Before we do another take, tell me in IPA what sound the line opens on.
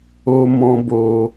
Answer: o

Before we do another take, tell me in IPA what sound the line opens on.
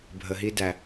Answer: bʱ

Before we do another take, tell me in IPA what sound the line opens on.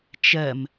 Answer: t͡ʃ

